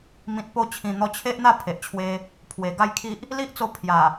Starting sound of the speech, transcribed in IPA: m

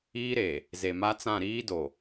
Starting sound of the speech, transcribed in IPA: iː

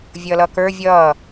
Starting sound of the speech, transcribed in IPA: vʲ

